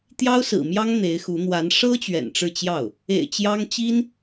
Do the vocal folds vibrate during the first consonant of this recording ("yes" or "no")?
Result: no